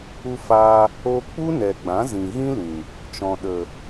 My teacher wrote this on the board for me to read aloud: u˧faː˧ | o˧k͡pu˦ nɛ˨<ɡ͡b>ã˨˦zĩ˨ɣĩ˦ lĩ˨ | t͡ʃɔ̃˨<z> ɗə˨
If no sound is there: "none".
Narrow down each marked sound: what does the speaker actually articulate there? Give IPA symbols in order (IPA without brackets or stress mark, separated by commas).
ɡ͡b, none